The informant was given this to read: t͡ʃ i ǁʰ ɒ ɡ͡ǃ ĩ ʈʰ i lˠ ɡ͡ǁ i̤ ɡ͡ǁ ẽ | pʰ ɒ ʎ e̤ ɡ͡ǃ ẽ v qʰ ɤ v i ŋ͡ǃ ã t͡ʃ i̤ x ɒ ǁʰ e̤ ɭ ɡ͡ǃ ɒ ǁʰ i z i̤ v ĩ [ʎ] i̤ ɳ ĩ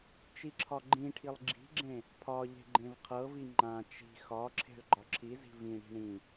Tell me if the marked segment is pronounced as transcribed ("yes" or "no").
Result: no